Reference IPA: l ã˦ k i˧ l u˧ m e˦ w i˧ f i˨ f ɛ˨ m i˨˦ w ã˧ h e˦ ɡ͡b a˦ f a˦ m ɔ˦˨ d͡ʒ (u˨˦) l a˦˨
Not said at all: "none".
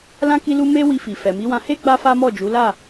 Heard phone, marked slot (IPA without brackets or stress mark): u˨˦